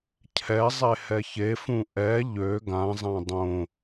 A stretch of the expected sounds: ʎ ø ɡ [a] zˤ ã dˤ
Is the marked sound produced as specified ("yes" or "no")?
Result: no